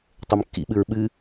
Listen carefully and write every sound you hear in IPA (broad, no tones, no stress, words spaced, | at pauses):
tˤɘmkːḭɓɨɹ ɓɨ